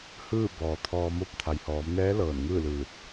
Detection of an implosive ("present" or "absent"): absent